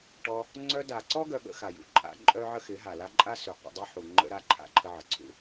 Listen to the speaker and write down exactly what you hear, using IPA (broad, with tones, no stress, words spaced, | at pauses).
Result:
ʈɔ˧ | ŋ͡ǀœ˧da˨ǀɔ˦ ɡœ˧ɠə̰˧xa˨jṵ˨ ǃʼa̰˧ ǃʼœ˦ ʕə˦xɪ˨˦ɦa˨la˦ ǃʼa˦sʉ˨ qʷə̰˧dˤœ˦ħu˨ ŋ͡ǃə̰˧ɾa˧ ǃʰa̰˦ǃʰə˧ʕə˨ǀʰṵ˧